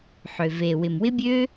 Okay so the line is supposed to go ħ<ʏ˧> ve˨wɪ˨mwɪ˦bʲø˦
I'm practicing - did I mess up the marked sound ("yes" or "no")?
yes